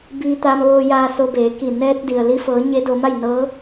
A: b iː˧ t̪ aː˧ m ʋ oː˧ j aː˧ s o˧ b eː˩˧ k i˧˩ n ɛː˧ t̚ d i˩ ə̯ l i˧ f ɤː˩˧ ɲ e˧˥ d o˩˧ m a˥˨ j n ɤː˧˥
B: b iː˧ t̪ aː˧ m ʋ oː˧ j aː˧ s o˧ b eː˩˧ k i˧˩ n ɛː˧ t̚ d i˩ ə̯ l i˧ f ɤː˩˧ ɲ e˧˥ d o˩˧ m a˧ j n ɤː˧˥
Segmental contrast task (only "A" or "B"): A